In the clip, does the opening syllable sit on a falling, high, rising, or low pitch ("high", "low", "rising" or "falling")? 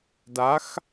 rising